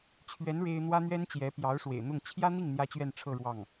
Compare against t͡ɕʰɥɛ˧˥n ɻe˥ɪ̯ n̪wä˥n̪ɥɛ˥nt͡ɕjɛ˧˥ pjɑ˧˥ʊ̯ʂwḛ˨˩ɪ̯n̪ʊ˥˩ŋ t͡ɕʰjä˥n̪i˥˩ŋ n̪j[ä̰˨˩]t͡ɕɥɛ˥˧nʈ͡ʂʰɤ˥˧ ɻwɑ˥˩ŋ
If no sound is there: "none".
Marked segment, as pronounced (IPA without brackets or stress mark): ä˥